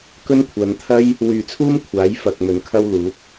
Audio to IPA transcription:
k ɵ˥ n kʷʰ ɐ˨˧ n t̪ʰ ɐ˥ j | w yː˨ t͡sʰ uː˥ m kʷʰ aː˨˥ j f ɐ˨ k̚ m ɵ˨˧ n kʰ ɐ˥ w l uː˨˥ p̚

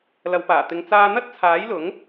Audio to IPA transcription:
l ɐ˨˧ w p aː˨˩ t̪ ɪ˨˧ ŋ t͡s aː˧ n̪ ɐ˥ t̚ t͡sʰ aː˨˥ j l ʊ˨˥ ŋ

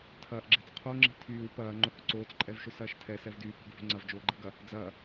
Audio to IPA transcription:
tʰ ɐː ʔ ɡ͡ǁ ɛ̤ t͡s qʰ o ŋ͡ǁ i̤ tʰ yː w p ɐː ŋ͡ǃ ʊ h ʊ ǀ oː t͡s ǃʼ ɛ v ʃ ʊ s ɐː ʃ tʰ ɛ s ɛ v d yː p ɛ̤ ɡ v o̤ ŋ͡ǀ ɐ v d͡ʒ oː ɡ͡ǃ ɛ̤ ɡ ɐ | d͡z ɐː

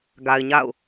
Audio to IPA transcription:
ɡ a˨ ɪ̯ ɲ a̰˦˨ ʊ̯

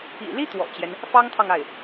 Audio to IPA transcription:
ḭ˨˩ l i˥ t̪ w ɔ̰˨˩ t͡ɕ j ɛ˦ n | f ɑ˥ ŋ t̪ʰ ɑ˥˧ ŋ a˥˩ ɪ̯

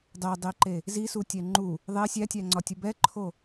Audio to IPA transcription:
dˤ e dˤ i ǃ e | z i s u tʲ ɛ ŋ͡ǃ u | ðˤ e sʲ æ tʲ æ ŋ͡ǀ ɒ tʲ u b ɛ ǃʰ o

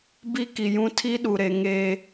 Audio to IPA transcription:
b i˦ k i˨ j ũ˦ tʰ i˦ ɗ u˨ ɾ e˨ ŋ eː˦

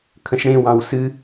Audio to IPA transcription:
kʰ ə̃ ʃ ɽ ẽ w ɑ̃ w s ɨ

